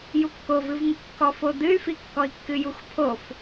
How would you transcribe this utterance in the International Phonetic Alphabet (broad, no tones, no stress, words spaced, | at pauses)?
jukːovɨvŋɨ kːɔfod̪ɨy̯fi kːɔi̯kːɨjuxpʰof